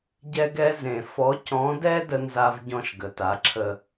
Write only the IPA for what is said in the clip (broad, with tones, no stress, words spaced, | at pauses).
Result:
ɟɛ˦ɡɛ˦ zẽ˨ fɔ˨˦cɔ̃˨˦dɛ˦ də˦nza˦v ɟɔ̃˦˨ʃɡə˨ta˨˦ǁʰə˦